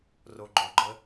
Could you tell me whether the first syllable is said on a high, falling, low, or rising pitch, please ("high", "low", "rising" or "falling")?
low